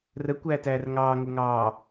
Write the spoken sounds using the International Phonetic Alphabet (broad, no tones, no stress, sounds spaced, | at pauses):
r ə kʷ æː t æː r ŋ ɑː ŋ o ŋ ɑː